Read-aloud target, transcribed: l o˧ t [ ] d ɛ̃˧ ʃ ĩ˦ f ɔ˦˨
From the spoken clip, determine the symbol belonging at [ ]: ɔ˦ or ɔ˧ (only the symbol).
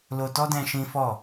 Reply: ɔ˦